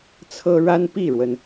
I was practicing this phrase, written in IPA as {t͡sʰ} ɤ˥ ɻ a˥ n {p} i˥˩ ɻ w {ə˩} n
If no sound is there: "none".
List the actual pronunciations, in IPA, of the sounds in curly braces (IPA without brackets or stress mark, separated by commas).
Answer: t͡sʰ, p, ə˩